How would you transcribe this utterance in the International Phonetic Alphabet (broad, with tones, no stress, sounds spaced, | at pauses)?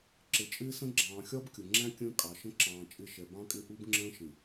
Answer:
ǁ ɪ˨ t͡ʃʼ ɪː˦ s ə̃˦ ɡ͡ǁ ɑ̃ː˨ xʲ ɒ˦ b kʲ ʊ˨ ŋ͡ǁ æ̃˦ kʲ ə̃ː˦ kʼ ɑ˨ ʃ ə̃˦ ǁ ɑ̃ː˨ t͡ʃʼ ɪ˦˨ ʃ ɛ˨ b ɑ̃˦ kʼ ɪ˦ ʔ u˦ b ŋ͡ǁ ə̃ː˦ ʃ ĩ˨